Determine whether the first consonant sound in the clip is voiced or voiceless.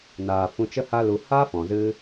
voiced